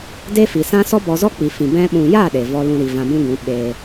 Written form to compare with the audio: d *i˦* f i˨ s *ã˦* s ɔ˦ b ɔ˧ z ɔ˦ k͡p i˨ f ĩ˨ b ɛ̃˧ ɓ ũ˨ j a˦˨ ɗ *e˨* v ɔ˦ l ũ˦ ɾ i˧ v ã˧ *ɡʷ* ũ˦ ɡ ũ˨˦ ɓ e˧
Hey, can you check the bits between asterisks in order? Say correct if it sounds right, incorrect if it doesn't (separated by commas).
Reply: incorrect, correct, correct, incorrect